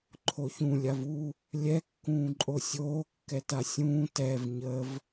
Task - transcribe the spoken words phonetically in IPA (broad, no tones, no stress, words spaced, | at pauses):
ǃʰoçũ lʲavu | lʲɛ kːũːǃʼosʲoː kːɛtasʲũː tɛv ɲəv